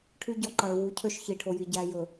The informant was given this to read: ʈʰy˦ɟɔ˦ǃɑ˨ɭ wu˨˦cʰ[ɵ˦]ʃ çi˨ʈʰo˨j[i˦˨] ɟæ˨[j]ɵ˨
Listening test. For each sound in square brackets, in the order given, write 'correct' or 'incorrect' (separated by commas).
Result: incorrect, incorrect, correct